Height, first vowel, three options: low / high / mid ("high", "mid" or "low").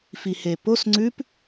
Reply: high